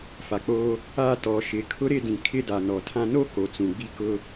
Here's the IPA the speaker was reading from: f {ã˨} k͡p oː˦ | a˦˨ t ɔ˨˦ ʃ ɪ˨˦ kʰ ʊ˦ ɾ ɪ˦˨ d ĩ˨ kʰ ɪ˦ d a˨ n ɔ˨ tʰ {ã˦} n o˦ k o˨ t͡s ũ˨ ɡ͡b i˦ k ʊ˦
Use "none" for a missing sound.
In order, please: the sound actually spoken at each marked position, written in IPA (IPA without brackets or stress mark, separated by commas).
a˨, ã˦